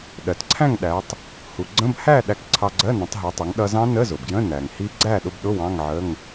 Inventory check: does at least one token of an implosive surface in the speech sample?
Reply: yes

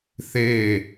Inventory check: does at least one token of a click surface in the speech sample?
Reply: no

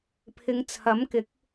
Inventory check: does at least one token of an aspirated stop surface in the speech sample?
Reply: yes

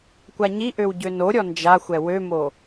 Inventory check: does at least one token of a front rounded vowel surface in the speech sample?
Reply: yes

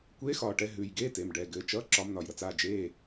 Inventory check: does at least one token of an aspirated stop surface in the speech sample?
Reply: no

